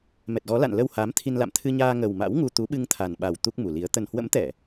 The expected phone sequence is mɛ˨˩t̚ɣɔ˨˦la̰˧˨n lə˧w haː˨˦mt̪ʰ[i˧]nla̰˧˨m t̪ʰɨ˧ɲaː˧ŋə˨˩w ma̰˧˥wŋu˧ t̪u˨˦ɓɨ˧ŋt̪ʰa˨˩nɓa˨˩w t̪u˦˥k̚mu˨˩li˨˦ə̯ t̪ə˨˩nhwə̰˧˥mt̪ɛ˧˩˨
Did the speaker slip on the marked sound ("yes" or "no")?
no